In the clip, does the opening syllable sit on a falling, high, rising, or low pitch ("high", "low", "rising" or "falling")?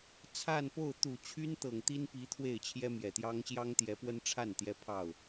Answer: falling